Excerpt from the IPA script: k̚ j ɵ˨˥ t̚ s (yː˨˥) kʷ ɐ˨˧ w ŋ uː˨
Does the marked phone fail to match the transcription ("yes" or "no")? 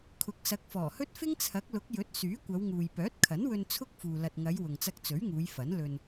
no